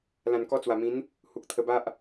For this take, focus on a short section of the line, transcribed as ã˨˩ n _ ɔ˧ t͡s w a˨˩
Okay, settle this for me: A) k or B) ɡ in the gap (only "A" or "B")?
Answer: A